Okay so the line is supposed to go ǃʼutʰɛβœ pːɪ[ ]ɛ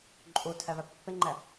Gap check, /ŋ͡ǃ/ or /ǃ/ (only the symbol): ŋ͡ǃ